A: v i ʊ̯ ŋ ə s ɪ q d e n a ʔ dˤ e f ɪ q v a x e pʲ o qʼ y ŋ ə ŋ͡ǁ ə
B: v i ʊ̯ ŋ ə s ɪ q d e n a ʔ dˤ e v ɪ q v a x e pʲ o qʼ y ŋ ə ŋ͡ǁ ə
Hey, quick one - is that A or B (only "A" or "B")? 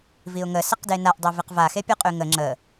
B